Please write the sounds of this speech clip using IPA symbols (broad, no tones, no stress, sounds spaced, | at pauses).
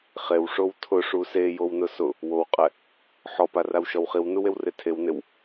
χ e w ʂ o w tʰ ʊ ʂ u s e j o w n ʊ s ʊ | w o w qʼ ɛ | ħ ɔ p a r a w ʃ ɔ w χ i w n u w e w r e tʰ e w n ɪ w